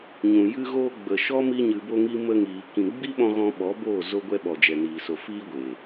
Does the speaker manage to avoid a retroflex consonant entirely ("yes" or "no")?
yes